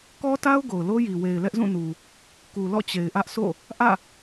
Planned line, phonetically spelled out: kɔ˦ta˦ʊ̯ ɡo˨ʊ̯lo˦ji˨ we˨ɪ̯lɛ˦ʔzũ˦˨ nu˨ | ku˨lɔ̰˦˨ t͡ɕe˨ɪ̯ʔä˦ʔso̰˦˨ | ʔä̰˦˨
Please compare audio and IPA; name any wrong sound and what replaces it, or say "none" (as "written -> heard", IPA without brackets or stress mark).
none